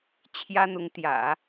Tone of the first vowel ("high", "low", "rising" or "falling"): high